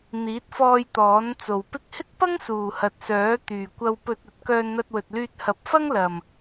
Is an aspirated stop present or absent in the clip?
absent